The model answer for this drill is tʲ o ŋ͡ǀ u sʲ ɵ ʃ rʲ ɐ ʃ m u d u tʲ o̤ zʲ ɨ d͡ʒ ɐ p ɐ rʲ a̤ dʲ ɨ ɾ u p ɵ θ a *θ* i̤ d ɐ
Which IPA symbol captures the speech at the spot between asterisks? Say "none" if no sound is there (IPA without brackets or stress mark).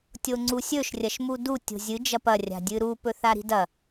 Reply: ɾ